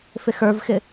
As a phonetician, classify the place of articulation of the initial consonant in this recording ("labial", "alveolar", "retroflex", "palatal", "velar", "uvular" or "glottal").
labial